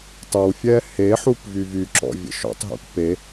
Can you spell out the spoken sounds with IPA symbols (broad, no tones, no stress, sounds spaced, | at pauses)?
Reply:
tˤ ə w fʲ ɛ h e ħ u p v y v y ǁ ɔ̰ vʲ ə̰ ʃ ɔ̰ tˤ ɦ ṵ k p e